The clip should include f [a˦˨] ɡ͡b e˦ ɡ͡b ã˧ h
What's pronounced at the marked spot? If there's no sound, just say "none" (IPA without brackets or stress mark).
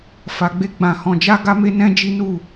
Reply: a˧